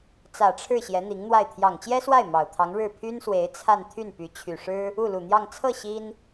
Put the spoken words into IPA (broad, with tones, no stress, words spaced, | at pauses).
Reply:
t͡sä˨˩ʈ͡ʂʰɻ̩˥˩ ɕjɛ˧˥n̪i˧˥ŋn̪wa˥˩ɪ̯ t̪ʰjɑ˨˩ŋt͡ɕjɛ˥swa˥˩ɪ̯ mɑ˨˩ʊ̯t̪ʰɑ˧˥ŋɻɻ̩˥˩ pʰy˥nswe˧˥ɪ̯ t͡sʰa˥˧n t̪ʰy˥˩npy˧˥ t͡ɕʰy˨˩ ʂɻ̩˥ | u˥˩lu˨˩n̪jɑ˥˧ŋ t͡sʰɤ˥˩ ɕi˥n